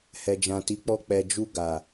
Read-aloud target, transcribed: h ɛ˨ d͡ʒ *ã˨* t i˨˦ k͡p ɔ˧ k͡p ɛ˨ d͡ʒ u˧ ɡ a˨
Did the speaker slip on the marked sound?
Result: no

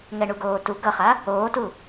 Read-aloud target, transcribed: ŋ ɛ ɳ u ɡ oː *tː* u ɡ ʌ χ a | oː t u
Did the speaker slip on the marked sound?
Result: yes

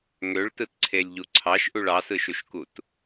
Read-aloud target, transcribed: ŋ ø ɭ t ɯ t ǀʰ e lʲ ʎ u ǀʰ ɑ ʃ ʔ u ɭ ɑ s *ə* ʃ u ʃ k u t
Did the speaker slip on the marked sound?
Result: yes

